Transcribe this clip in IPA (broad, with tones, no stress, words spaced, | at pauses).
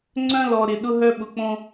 ŋ͡ǀœ̃˦lɔ˨ɾɪ˨ ɗʊ˦ɦœ˦ɓʊ˨k͡põ˦